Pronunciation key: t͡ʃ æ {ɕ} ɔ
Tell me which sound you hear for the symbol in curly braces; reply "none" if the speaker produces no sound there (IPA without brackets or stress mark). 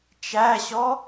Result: ɕ